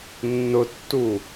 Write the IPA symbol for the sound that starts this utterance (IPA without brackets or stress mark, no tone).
nː